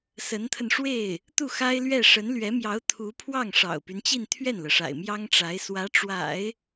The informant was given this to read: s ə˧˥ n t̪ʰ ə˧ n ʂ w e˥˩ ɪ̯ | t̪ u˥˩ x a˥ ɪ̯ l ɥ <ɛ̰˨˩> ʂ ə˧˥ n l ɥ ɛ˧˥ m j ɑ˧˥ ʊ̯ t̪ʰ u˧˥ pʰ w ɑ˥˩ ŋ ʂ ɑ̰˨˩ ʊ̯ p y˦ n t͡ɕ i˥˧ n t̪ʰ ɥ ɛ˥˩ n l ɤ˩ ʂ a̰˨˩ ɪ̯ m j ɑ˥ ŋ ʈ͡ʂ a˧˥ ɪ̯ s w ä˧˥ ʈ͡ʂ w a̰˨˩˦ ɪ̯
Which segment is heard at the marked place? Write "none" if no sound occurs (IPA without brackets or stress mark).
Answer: ɛ˥˩